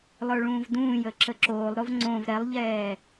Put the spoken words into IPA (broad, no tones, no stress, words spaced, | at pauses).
lˠə˞ɭũːvdũːjə ǁəǁoːlˠɾov ŋ͡ǀõv ɾɛlˠʎɛː